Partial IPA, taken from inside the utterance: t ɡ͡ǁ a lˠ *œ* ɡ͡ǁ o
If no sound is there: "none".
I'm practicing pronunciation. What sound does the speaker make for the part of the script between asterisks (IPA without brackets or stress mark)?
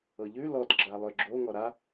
œ